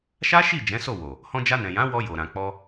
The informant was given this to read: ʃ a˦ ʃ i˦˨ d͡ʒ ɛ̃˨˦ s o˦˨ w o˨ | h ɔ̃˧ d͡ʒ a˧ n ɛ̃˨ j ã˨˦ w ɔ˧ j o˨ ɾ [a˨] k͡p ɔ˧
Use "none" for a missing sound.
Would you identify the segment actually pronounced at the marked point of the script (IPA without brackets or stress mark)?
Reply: ã˨